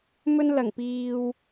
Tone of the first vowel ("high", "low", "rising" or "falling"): high